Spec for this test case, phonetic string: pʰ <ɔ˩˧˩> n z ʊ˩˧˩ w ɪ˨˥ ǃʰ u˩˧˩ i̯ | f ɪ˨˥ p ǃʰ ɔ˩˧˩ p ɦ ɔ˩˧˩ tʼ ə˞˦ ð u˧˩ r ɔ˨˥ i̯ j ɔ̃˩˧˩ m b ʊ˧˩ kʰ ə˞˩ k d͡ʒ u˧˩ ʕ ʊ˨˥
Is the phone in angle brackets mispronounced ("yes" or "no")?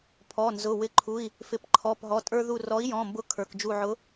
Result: no